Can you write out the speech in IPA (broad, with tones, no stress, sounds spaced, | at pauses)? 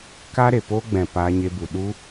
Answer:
k a˦ ɾ e˨ p oː˦ ɡ͡b ɛ̃˨ p aː˧ ɲ e˧ b u˨ ɗ u˦